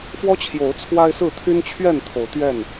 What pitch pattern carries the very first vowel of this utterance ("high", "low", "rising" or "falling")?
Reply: high